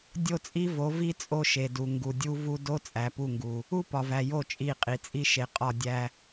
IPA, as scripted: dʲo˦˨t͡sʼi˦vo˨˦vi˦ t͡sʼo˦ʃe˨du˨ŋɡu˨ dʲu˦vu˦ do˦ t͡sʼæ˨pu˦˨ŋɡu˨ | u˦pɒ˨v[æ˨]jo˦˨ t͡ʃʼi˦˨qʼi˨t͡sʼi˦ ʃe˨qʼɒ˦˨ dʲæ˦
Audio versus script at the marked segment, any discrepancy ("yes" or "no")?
no